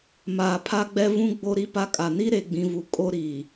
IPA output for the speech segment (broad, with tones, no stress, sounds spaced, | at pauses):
m aː˨ pʰ a˦ ɡ͡b ɛ˦ v ũ˦ ɡ͡b o˦ ɾ i˦ p a˦ kʼ a˨ n i˦ ɾ e˨ ɡ͡b ĩ˨ v u˨ kʼ o˦ ɾ iː˨